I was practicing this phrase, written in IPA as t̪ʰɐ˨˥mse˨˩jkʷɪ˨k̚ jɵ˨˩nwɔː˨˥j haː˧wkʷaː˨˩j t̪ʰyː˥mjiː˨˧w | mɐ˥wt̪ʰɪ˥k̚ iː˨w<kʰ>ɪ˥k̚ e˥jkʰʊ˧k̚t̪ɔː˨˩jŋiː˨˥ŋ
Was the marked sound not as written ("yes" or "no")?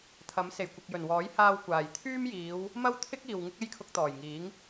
yes